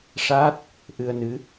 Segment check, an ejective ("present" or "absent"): absent